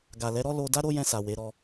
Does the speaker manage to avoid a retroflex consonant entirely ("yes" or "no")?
yes